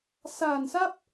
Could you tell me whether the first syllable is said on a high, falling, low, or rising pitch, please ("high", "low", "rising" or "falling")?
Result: low